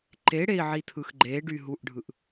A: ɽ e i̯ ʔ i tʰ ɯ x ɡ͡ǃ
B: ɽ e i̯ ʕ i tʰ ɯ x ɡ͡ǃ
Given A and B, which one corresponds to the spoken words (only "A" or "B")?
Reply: B